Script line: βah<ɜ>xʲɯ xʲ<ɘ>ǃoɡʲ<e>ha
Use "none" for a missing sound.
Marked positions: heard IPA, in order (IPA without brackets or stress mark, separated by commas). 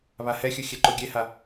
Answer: ɛ, ɛ, e